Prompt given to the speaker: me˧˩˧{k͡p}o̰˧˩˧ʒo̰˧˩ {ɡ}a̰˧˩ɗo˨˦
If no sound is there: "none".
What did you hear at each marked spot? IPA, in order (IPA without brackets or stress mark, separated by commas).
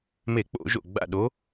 k͡p, ɡ͡b